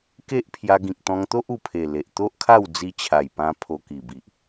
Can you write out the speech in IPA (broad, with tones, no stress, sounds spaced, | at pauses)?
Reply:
k e˦ ʔ pʰ j a˧ ɡ ĩ˨ k̚ t̪ ɔ̃˧ ŋ t̪ o˦ ʔ u˨˩ pʰ e˨˩ l e˨ ʔ t̪ o˦ ʔ kʰ a˥˧ w d͡z i˧ t͡ɕʰ a˨˩ j p ã˧ pʰ o˧ k i˨˩ b i˨ ʔ